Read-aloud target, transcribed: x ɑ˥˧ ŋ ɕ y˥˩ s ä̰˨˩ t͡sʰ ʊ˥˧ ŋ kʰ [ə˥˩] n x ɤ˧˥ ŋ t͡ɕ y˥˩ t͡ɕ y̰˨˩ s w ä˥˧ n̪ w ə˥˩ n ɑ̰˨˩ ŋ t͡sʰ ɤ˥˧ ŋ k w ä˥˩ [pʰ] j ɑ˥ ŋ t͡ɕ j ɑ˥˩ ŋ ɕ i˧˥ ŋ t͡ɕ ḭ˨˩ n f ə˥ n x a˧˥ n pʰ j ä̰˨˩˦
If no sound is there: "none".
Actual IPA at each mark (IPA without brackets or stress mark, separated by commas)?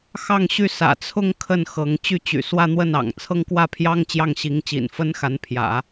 ə˥˩, pʰ